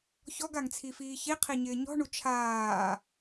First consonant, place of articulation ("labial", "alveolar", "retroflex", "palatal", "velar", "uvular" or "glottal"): palatal